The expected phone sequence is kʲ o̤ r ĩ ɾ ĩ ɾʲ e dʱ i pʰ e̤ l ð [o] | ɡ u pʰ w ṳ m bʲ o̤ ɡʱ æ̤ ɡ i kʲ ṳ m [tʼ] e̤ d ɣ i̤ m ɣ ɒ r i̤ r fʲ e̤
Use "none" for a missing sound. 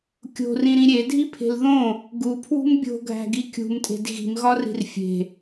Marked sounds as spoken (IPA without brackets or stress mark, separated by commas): õ, tʼ